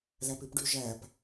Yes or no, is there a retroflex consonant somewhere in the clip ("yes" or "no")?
yes